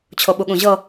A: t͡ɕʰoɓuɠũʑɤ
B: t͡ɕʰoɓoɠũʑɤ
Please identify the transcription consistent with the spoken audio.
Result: A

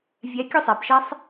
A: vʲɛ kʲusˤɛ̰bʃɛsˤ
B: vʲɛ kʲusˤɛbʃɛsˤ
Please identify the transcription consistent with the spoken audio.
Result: B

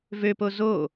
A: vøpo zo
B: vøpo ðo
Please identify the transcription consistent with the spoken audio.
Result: A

